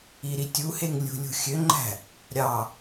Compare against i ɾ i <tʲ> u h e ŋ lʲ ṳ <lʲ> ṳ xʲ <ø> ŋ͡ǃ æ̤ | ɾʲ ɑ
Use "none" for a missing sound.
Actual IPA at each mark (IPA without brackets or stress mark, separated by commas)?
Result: tʲ, lʲ, ø